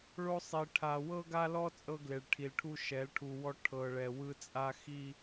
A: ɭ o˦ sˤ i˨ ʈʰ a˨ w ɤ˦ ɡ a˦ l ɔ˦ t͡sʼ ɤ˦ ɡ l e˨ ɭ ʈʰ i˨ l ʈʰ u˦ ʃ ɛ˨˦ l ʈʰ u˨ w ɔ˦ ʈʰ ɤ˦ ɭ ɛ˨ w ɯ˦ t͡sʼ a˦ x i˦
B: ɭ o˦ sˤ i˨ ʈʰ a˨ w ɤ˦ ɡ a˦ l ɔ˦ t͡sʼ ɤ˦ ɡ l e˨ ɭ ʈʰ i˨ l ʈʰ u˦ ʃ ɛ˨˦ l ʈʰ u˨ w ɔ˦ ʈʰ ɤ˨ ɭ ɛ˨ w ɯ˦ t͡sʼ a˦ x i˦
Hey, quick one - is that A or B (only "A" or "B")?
B